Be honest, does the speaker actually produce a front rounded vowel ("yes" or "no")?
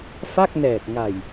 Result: no